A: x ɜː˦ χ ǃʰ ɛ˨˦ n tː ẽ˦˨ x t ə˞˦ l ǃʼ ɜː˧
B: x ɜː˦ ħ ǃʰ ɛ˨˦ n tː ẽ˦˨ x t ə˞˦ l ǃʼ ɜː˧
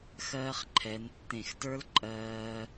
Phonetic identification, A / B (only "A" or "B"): A